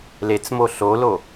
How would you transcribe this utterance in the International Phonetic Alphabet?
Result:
l e t͡s m o ɬ o l o

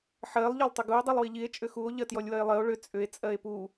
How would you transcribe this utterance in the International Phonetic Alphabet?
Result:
ħ ɜ lˠ ʎ ɔ lˠ tˤ ʏ ɡ u o̯ dˤ i lˠ w i ʎ i e̯ t͡ʃʼ ʏ x u o̯ ʎ ɜ t j ɔ lʲ w ɜ e̯ lˠ ɜ o̯ ɭ ʏ t͡sʼ ʏ e̯ t͡sʼ ɜ e̯ p u

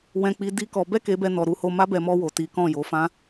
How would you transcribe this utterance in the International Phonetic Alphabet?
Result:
w ɛ̃˧ k͡p i˧ d i˦ k ɔ˧ b ɛ˦ k e˧ b ɛ˧ n ɔ˨ ɾ u˧ h o˧ m a˦ b ɛ˧ m ɔ˧ w o˨ t i˨˦ k ɔ̃˦˨ j o˨˦ f ã˦

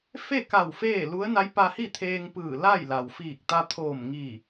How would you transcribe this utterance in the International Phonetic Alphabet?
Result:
f e˥˨ k a˧˩ w f eː˥˨ l u˧˥ ə̯ n a˧˥ j p a˧ h i˥˨ t̪ʰ eː˧ ŋ p ɯː˧˩ l a˥˨ j l a˩ w f iː˧˩ k̚ t̪ a˧ t̪ʰ oː˧˩ m ŋ i˧˩

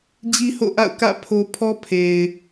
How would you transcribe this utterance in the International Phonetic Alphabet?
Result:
d͡ʑ i˦ h o̰˦˨ ʔ a̰˦˨ ʊ̯ k ä̰˦˨ pʰ o˦ pʰ ɔ˦ pʰ e˨ ɪ̯

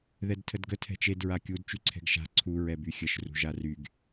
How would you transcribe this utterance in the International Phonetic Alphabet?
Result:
ð ɛ d tʰ ə d ɡ ə tʰ ɛ̤ t͡ʃ e d ɹ a kʲ u d t͡ʃ y ǀʰ ɛ̤ ɡ ʃ a̤ ǀʰ u ɹ ɛ b y xʲ ə ʃ r ṳ ʒ a r y ɡ

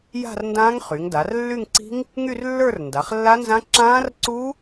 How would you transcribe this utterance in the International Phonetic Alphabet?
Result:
j a̤˥˧ r n d ãː˦˥ ŋ χ y˩˧ ŋ d a˩˧ r lː y˥˧ ŋ ǀ i̤˦˥ ŋ | ŋ y˥˧ r lː ə˞˥˧ r n d a˩˧ χ lː a˦˥ n z ã˦˥ ǁ ãː˦˥ r ǀ u˦˥

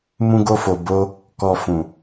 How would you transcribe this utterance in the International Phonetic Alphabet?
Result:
m ũ˧ ɡ o˧ f o˨ b o˧ | k ɔ˨ f ũ˨

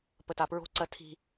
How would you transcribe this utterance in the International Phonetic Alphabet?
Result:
p ə t a p ɹ o̤ ǀ ɜ tʰ i̤

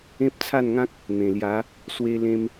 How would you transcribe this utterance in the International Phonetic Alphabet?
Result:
ẽ˦ p̚ t͡sʰ a˥˧ n ŋ ã˦ k̚ | n̪ ẽ˨˩ l j a˨˦ | s w e˧ l ẽ˧ m

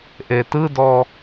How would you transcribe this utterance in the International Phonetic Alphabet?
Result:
ʔ e t ɯ d ɔ

